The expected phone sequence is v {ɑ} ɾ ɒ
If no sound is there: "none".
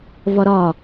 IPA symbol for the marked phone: ɒ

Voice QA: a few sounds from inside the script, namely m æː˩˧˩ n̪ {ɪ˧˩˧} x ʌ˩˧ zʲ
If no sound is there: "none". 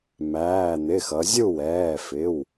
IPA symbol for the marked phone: ɪ˩˧˩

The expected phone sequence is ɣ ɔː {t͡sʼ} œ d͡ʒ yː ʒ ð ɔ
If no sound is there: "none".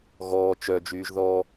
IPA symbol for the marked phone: t͡ʃ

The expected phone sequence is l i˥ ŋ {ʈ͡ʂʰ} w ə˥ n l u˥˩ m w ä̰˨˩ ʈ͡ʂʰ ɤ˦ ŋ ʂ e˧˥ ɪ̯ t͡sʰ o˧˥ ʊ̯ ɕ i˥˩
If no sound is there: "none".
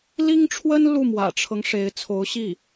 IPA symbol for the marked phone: ʈ͡ʂʰ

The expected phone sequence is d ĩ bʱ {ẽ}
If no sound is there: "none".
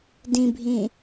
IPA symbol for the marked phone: ĩ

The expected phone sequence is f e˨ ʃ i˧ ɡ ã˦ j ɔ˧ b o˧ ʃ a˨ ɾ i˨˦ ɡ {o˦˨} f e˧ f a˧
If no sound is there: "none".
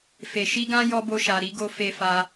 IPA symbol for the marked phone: o˧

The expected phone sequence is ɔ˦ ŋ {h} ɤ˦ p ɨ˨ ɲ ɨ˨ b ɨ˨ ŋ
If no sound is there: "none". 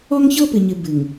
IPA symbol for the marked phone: ç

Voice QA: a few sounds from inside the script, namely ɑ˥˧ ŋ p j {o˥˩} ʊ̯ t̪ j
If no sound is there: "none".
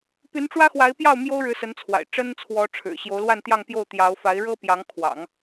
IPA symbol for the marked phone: o˥˩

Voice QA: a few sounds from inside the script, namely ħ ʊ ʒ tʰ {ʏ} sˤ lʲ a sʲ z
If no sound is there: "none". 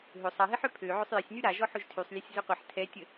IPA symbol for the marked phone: y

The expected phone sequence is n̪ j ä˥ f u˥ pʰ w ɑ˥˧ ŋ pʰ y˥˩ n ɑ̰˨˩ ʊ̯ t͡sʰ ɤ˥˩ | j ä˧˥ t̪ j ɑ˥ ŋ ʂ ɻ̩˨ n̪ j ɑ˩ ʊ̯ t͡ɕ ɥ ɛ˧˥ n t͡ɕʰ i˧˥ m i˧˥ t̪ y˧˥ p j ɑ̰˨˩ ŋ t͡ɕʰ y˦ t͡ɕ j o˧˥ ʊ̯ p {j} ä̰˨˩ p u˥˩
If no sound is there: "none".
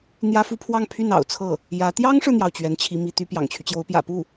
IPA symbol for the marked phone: j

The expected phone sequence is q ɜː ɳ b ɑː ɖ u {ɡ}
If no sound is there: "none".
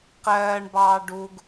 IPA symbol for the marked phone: ɡ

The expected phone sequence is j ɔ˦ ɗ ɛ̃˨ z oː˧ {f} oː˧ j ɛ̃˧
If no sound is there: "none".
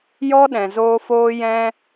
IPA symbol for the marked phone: f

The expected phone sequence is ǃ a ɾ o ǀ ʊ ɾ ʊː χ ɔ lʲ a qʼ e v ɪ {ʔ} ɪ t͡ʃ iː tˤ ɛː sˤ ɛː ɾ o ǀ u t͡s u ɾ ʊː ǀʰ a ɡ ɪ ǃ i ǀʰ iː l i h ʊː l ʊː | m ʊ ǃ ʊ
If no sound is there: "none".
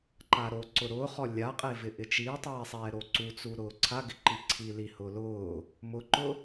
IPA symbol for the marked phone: ʔ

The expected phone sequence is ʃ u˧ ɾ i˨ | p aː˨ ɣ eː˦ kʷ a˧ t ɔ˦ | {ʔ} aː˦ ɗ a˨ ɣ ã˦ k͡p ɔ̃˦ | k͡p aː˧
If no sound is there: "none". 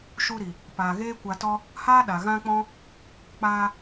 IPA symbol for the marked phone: h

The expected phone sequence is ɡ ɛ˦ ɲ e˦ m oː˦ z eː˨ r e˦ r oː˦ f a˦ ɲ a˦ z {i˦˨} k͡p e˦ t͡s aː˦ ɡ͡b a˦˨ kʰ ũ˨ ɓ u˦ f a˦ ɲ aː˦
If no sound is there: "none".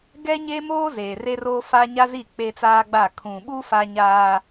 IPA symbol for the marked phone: i˦˨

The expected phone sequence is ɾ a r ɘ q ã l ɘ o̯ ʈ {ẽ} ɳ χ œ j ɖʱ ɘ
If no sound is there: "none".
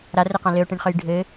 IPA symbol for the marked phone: ẽ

